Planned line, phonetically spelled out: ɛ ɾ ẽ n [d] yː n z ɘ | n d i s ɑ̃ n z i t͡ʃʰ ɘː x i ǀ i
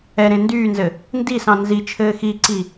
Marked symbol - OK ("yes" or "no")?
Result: yes